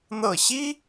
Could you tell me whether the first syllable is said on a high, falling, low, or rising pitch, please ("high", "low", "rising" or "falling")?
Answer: falling